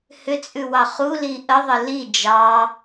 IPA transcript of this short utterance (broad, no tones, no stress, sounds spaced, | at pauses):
h ʏ t͡sʼ ʉ w ɑ χ u l i ʔ ə ðˤ ə l i d͡ʒ ɑ